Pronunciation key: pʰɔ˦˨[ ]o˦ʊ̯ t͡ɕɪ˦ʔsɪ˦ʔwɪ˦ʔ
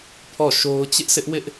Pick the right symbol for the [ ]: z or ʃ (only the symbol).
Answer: ʃ